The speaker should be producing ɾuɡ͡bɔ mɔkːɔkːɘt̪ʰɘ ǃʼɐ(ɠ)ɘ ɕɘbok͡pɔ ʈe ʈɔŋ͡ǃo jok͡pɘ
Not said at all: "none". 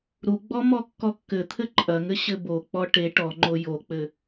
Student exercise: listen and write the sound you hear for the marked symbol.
ŋ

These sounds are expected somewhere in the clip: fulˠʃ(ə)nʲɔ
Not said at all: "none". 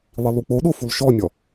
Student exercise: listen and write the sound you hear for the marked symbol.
ɔ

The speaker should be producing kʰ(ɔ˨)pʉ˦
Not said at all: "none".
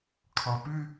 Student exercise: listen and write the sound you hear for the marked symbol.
ɔ˨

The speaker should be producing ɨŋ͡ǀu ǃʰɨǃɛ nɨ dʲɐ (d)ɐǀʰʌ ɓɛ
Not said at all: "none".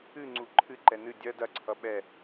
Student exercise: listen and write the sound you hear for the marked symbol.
d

